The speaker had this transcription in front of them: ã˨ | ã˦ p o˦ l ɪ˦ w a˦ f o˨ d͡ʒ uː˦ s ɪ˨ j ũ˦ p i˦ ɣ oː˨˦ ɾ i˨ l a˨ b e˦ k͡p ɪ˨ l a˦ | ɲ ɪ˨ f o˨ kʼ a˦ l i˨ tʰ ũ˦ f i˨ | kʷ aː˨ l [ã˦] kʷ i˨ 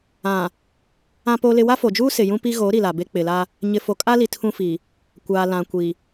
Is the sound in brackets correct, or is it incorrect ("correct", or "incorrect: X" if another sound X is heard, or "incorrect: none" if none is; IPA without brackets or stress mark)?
incorrect: ã˨